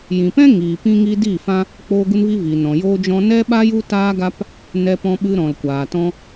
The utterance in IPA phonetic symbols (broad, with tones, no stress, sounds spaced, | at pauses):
j ĩ˨ p ɛ̃˦ ŋ iː˨ p ĩ˦ ŋ i˦ d iː˦˨ f ã˦ | k͡p oː˧ ɡ u˧ n v i˧ v iː˨ n ɔ̃˨ j oː˧ d͡ʒ ɔ̃˧ n ɛ˦ ɓ a˦ j u˦ t aː˦ ɡ a˦ p | n ɛ˧ p ɔ̃˧ ɓ ɨ˧ ɾ ɔ̃˨ l kʷ aː˨ t ɔ̃˧